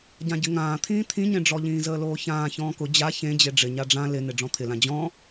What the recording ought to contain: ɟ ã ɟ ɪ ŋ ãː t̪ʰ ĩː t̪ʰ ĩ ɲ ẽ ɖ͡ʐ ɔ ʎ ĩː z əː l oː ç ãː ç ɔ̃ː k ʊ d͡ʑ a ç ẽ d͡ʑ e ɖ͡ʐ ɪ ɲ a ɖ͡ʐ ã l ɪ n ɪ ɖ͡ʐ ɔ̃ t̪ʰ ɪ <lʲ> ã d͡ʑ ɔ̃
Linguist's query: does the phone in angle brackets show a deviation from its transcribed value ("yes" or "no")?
yes